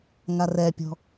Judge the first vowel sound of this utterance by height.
low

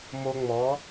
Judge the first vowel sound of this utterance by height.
mid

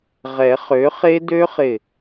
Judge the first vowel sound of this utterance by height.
mid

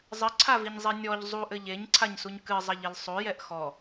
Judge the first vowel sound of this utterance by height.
mid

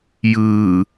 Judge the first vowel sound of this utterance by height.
high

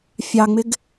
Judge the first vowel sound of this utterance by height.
low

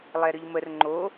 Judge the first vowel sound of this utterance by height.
mid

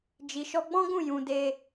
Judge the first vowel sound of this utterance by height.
high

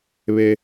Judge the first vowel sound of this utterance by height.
mid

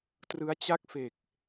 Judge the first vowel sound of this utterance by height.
high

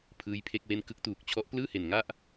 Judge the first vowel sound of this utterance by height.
high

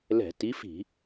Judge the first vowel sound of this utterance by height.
mid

